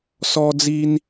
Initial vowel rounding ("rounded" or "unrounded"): rounded